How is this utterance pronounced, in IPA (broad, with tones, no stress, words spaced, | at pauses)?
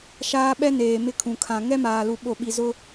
ʃaː˦ɓɛ˦neː˨ mɪ˦kʰũ˨kʰã˨ ŋɛ˦maː˨lu˨ ɓo˨ɓi˨ zʊ˦